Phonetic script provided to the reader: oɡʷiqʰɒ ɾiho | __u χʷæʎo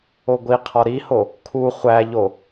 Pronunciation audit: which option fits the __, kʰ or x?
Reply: kʰ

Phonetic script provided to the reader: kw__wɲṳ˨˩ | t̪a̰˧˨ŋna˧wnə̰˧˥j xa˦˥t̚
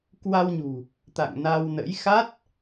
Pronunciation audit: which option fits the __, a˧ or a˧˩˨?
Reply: a˧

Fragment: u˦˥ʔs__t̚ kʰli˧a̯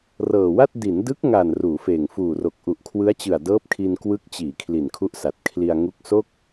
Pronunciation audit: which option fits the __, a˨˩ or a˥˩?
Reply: a˨˩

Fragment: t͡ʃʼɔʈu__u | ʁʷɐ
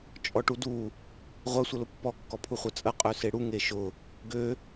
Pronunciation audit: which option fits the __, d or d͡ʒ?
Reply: d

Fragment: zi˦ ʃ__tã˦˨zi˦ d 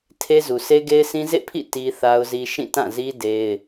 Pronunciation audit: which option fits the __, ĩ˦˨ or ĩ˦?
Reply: ĩ˦˨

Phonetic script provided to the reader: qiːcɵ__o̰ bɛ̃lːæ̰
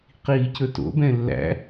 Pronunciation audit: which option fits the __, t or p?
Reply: t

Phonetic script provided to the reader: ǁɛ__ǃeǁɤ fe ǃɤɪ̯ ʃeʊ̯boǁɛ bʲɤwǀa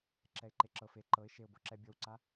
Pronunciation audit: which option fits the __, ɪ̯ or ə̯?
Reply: ɪ̯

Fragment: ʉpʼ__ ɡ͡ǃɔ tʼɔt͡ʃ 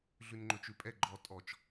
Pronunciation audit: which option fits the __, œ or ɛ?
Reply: ɛ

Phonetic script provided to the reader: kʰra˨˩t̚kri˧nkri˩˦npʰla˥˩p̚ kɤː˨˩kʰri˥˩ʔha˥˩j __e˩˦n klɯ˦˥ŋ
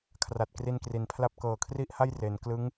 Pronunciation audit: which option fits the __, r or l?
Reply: r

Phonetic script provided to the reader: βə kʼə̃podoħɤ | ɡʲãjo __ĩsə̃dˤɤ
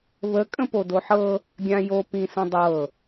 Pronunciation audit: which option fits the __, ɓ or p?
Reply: p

